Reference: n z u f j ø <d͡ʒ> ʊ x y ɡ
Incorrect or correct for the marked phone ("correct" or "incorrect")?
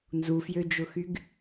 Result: correct